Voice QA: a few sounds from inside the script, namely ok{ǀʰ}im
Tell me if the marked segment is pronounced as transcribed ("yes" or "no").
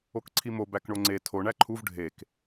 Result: yes